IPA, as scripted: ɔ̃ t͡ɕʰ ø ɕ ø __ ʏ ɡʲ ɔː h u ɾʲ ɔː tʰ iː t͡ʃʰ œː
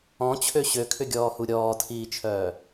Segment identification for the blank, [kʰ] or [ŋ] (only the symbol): kʰ